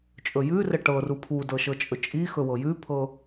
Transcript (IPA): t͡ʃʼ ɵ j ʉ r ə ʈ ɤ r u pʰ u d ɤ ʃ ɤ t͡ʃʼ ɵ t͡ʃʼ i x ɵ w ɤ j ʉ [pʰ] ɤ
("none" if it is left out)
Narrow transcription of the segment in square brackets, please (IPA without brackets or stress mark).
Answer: pʰ